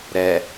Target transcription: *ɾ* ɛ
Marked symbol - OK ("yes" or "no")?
yes